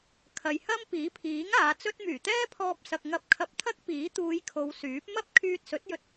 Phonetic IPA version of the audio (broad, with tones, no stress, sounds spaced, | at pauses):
kʰ ɐ˨ j h ɐ˥ m p iː˨˥ pʰ iː˨˥ ŋ aː˨˧ t͡s ɵ˥ t̚ m yː˨˩ t̪ ɛː˥ pʰ ɔː˧ p̚ s ɐ˨ k̚ ŋ ɐ˧ p̚ kʰ ɐ˧ p̚ t̪ʰ ɐ˥ k̚ p iː˨˥ t̪ uː˨˧ j kʰ o˨˧ w s yː˨˥ p̚ m ɐ˥ p̚ kʰ yː˧ t̚ s ɵ˨˥ t̚ j ɵ˧ t̚